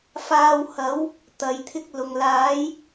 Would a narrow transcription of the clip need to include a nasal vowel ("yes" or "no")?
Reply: no